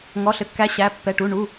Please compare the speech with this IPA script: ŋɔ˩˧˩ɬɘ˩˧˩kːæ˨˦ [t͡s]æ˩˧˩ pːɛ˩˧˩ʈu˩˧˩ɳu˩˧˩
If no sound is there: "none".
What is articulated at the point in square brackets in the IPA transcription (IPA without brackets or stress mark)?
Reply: ɕ